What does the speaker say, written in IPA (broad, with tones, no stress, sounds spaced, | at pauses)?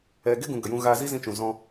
ɛ˨ ɡ e˦ ɡ ũ˨ ɡ ə˨ j ũ˧ ɣ aː˧ z i˦ z ĩ˧ t͡ʃ ũ˨ z ɔ̃˧